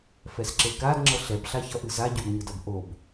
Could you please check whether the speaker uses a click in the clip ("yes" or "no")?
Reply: yes